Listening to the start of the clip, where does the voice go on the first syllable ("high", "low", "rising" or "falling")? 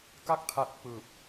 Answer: falling